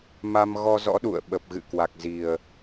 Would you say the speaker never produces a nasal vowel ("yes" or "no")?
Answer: yes